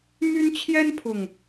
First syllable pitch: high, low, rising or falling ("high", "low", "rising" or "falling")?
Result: high